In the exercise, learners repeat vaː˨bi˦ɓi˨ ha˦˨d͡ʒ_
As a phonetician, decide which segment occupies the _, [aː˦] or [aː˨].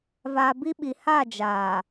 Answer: aː˨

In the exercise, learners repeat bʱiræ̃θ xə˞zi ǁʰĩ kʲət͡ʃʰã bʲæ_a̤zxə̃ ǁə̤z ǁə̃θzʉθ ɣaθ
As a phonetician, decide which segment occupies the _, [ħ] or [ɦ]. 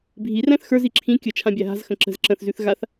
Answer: ɦ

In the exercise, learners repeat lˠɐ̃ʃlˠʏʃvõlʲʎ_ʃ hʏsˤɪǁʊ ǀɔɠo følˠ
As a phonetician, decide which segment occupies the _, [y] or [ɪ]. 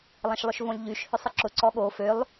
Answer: y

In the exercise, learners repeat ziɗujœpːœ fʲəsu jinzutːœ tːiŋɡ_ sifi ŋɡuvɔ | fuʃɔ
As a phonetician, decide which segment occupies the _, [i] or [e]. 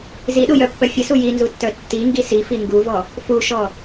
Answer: i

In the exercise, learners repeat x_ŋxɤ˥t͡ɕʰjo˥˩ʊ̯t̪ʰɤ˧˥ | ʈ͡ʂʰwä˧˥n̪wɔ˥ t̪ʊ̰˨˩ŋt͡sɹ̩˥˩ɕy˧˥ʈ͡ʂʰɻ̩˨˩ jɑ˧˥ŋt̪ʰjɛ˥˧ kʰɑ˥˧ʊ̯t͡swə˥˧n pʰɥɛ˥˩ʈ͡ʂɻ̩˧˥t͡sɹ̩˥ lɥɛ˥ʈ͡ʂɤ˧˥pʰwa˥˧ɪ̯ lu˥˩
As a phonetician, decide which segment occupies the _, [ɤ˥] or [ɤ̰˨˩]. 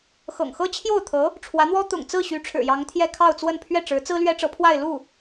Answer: ɤ̰˨˩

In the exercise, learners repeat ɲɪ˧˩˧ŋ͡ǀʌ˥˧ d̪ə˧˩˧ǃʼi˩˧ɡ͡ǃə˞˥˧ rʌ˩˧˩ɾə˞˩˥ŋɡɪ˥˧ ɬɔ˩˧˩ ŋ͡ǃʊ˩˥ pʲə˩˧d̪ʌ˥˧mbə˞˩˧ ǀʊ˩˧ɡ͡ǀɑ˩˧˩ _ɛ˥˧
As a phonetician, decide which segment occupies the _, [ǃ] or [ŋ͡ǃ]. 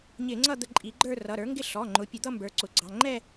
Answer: ŋ͡ǃ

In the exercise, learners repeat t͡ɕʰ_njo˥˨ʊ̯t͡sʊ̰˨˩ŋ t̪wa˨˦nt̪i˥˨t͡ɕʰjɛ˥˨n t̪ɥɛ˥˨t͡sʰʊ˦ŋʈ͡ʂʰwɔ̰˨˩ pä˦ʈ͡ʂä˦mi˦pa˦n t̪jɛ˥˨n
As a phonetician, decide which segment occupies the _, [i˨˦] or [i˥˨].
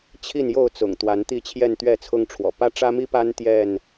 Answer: i˥˨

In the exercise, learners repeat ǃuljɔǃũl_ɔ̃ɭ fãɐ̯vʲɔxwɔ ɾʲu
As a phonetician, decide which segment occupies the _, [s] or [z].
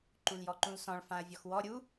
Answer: s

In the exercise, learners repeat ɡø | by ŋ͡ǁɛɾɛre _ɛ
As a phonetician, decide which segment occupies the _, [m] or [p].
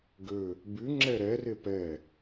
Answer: p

